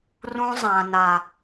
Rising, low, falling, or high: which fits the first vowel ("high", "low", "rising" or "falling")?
high